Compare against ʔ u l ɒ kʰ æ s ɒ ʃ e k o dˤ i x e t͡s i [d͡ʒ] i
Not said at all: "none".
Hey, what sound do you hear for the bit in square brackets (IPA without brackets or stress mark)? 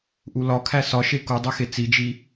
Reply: d͡ʒ